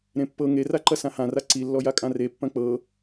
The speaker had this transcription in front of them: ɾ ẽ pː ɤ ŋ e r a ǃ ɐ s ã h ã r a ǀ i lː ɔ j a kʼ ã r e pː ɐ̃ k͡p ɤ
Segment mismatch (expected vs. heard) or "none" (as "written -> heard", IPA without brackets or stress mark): none